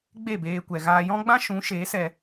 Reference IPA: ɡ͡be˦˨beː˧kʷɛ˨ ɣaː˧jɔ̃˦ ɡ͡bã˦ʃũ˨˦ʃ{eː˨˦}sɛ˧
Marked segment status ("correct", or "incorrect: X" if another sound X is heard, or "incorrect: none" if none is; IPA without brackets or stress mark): correct